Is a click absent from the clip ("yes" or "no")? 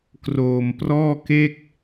yes